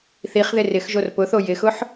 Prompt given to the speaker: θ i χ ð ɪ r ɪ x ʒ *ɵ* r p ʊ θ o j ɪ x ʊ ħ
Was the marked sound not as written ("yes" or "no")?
yes